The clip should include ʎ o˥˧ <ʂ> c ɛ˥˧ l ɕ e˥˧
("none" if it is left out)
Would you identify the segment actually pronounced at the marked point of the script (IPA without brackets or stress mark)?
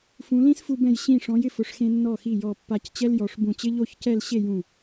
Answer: ç